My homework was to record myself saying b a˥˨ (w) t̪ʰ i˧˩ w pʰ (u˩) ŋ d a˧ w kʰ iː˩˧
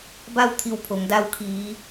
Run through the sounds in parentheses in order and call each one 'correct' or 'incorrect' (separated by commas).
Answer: correct, incorrect